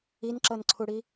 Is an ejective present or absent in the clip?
absent